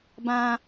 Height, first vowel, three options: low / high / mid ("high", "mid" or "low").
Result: low